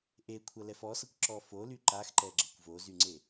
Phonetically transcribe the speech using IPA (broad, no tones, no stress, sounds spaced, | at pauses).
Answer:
ʔ e kʷʰ ɐ l ɛ f ɔ s ʌ kʷ ǁ ɔ f o l y ǃ a x ǃ ɛ ɡ͡ǁ ɐ kʷ v o z y ŋ͡ǀ e